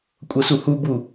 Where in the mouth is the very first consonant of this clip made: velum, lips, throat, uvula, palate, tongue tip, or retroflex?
velum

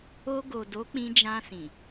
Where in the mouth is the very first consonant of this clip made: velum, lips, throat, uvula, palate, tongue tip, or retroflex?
velum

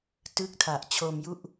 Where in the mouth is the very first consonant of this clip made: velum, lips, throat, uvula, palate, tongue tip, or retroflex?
tongue tip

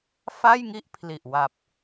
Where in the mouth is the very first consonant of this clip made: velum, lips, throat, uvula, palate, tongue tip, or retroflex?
lips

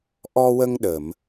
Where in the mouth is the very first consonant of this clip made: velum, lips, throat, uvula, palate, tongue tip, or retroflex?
throat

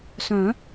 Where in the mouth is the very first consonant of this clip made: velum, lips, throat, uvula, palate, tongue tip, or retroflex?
tongue tip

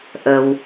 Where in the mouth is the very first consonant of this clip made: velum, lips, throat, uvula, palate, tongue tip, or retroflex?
throat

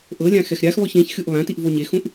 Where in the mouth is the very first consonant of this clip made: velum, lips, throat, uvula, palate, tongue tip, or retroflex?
throat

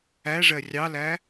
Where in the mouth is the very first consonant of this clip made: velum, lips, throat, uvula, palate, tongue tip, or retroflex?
retroflex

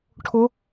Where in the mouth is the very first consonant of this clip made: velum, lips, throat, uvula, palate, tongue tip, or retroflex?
retroflex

